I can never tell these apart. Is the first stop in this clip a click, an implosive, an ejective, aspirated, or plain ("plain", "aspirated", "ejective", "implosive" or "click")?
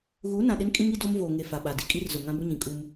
implosive